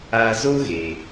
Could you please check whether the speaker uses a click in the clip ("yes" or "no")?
no